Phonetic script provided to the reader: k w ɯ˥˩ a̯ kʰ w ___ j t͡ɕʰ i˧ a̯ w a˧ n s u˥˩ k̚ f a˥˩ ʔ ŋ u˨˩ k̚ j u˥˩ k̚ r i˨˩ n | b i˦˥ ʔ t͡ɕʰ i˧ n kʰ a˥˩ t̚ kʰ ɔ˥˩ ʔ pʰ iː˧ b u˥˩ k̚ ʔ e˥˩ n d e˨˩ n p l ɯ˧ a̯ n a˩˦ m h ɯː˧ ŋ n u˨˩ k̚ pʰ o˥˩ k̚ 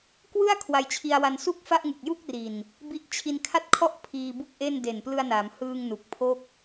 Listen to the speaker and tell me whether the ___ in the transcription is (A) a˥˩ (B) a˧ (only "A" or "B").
B